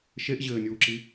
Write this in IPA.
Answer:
ʃ e ʔ ʑ ɘː nʲ uː ǁ i

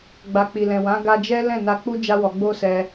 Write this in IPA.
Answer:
ɡ͡b a˨ k͡p i˨ l ɛ̃˨ w ã˨˦ ɡ a˧ d͡ʒ ɛ˦ l ɛ̃˦˨ n a˧ k͡p u˦ d͡ʒ a˦ w ɔ˧ ɡ͡b o˦ s ɛ˧

